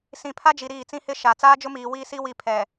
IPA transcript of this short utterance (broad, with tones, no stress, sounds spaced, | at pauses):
s ĩ˨ pʰ a˦ d͡ʒ i˨ ɾ iː˦˨ t͡s ĩ˦ h ɪ˦ ʃ a˨ t͡s aː˦ d͡ʒ ʊ˦ m iː˨ w iː˦ s i˦ w i˦˨ pʰ ɛ˨